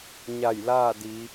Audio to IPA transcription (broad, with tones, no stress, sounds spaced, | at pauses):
ɲ a˧˩ j l aː˥˨ d i˩˧